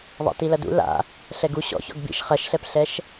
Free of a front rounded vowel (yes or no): yes